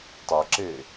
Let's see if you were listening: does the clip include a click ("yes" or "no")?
yes